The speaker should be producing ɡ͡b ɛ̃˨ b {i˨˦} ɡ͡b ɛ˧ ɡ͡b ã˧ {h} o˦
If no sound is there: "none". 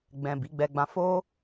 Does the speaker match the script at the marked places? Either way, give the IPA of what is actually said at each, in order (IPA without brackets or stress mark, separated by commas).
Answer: i˨˦, f